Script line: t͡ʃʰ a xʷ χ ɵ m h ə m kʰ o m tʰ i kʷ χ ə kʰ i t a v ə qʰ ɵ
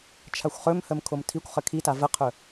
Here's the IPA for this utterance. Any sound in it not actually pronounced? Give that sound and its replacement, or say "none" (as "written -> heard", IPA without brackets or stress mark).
none